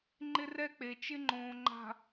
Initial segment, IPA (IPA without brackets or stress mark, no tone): ŋ͡ǃ